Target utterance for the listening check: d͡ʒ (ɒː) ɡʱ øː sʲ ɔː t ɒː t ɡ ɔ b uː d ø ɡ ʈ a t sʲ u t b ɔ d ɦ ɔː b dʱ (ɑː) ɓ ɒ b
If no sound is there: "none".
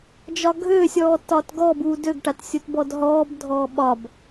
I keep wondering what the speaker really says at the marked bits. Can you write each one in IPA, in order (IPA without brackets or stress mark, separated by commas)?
ɒ, ɔː